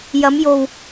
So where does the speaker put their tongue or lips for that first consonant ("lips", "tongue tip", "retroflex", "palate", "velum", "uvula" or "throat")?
palate